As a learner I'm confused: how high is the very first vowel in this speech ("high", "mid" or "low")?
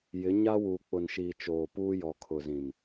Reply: high